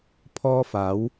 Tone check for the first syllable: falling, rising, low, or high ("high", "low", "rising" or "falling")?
high